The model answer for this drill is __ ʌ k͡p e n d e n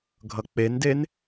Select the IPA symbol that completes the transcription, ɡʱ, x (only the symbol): ɡʱ